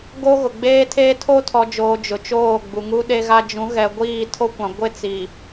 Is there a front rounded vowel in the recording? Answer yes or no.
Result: no